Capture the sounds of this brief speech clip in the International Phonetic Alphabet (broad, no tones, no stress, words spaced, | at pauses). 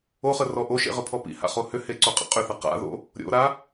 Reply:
oχə rɔʔoʃḛ ʁʏpʰɔpḭha̰ χohʏhe ǀoqʼə̰qʼʏθə qa̰ðo̰ | ɾʲo̰ɾa